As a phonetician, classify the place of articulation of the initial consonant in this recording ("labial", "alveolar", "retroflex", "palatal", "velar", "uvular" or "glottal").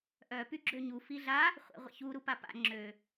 glottal